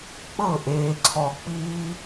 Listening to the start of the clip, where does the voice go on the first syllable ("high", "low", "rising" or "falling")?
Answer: falling